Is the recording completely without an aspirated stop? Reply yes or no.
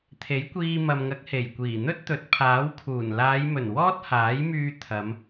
no